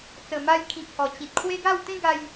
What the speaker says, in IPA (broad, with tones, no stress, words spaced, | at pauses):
t͡sə˨˩ma˧j kʰĩ˨k̚hɔ˨˩t͡ɕĩ˨t̚ kʰwe˦ɡa˥˧w t̪ẽ˦ ɡa˧j